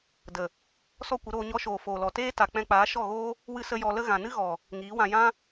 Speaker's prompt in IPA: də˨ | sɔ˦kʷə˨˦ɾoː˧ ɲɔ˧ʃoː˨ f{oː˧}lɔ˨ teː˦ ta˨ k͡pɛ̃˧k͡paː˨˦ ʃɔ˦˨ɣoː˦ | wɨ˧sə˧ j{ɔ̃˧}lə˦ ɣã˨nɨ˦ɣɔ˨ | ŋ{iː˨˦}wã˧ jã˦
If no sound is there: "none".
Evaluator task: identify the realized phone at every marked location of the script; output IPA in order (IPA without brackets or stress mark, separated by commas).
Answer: oː˨, ɔ˧, iː˨˦